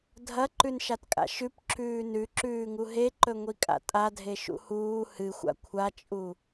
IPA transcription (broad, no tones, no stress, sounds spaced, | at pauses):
dʱ ɐ ǃ ʉ n ʃ a t kʼ a̰ ʃ ʉ p ǁ ʉː n ʉ ǁ ʉː ŋ u ɦ e ǃ ɵ ŋʷ i kʼ a̰ tʼ a dʱ e ʃ ṵ h uː h ɨ xʷ a̰ kʷʰ a t͡ʃʼ u